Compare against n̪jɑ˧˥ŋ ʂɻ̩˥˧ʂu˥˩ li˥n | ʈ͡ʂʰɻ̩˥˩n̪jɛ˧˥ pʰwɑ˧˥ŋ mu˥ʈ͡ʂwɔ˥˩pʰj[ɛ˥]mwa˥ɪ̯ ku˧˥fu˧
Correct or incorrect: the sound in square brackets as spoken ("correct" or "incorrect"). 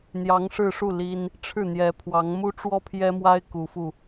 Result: correct